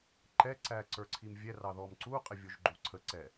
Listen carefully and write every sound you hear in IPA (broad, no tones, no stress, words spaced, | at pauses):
ǃɛǀæ ǀə˞ǀʰimvʲɛrɑ ðɔmǀuqʼɪ vʲʊʒɡ͡ǃuǀʰəǀɛ